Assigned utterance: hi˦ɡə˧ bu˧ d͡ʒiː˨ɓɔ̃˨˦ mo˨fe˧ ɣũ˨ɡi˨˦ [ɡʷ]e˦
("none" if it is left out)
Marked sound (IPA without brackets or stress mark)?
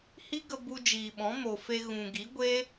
ɡʷ